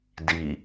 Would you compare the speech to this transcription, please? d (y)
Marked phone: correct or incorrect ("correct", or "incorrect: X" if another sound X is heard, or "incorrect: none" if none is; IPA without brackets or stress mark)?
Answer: incorrect: i